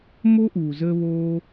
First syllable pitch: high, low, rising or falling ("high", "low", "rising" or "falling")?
high